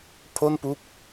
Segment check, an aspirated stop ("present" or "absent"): present